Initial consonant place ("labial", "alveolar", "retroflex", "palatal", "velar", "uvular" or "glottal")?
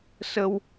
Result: alveolar